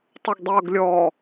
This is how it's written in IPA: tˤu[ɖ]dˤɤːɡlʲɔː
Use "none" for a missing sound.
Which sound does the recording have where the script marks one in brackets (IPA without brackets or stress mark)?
ɡ